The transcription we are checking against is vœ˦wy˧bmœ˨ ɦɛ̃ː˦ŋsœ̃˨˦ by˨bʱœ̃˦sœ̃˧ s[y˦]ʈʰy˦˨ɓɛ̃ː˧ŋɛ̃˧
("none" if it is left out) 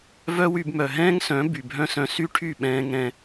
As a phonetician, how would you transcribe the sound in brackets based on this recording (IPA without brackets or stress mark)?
y˦